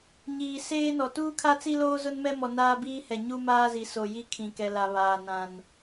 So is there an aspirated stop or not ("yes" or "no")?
yes